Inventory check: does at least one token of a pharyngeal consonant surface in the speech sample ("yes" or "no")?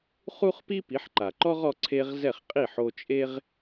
yes